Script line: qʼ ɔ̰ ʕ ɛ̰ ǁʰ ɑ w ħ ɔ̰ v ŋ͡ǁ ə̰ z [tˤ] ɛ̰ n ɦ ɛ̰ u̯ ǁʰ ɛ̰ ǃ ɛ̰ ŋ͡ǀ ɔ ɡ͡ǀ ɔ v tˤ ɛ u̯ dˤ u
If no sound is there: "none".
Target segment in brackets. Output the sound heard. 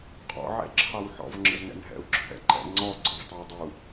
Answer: n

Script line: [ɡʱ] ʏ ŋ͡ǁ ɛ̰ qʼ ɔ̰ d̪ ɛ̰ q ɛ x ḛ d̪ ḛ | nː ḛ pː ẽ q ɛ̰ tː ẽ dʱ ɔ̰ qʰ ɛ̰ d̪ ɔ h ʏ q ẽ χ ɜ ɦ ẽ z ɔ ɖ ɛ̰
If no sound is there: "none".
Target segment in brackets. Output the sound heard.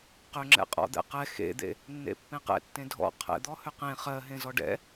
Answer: q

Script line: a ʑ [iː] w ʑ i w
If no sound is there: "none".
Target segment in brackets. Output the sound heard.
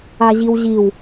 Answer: i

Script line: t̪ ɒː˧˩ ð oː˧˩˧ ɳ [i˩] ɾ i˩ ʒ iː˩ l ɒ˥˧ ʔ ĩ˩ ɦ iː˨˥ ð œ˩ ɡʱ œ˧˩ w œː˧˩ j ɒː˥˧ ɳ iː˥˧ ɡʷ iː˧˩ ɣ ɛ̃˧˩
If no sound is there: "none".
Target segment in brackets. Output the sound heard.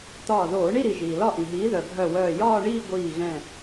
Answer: i˥˧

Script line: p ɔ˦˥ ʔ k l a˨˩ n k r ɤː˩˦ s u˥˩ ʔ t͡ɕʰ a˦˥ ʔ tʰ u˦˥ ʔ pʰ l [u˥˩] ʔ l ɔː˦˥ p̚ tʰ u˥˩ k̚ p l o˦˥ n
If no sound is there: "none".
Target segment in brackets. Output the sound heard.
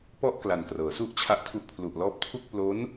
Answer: u˨˩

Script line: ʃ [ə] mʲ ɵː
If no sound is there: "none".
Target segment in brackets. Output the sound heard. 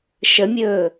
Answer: ə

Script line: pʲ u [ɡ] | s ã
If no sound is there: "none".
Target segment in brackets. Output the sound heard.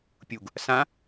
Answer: ɡ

